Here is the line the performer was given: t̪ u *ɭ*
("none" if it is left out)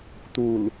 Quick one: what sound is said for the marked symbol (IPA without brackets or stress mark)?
l